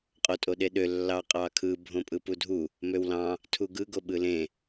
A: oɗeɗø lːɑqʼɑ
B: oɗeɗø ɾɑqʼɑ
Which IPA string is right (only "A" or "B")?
A